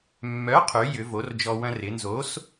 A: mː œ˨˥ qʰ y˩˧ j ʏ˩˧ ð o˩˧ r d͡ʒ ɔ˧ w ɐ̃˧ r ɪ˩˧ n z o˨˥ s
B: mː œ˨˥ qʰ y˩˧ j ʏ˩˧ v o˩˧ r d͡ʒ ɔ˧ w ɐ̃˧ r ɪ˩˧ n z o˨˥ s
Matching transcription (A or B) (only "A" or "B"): B